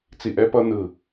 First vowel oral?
yes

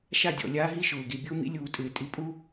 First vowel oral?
yes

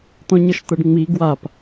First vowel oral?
no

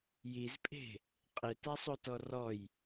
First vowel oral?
yes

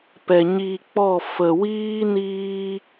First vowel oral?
yes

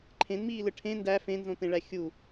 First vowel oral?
no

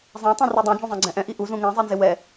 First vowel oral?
no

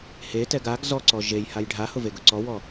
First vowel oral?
yes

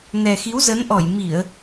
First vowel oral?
yes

